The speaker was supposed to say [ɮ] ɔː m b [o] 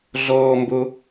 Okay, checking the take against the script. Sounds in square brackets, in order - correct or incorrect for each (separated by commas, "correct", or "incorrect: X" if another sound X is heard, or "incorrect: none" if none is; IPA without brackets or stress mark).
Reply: correct, correct